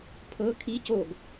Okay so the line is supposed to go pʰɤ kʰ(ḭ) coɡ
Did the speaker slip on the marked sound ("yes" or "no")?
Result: yes